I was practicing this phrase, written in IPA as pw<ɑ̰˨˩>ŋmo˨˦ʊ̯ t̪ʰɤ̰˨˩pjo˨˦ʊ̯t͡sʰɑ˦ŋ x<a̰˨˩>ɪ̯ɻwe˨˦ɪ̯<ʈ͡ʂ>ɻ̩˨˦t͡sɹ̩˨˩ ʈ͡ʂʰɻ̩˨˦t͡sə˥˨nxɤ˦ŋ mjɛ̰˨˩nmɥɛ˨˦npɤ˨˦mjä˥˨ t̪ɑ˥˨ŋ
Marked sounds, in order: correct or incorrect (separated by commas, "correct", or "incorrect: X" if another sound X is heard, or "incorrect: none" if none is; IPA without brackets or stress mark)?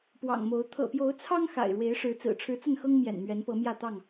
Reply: correct, correct, incorrect: ʂ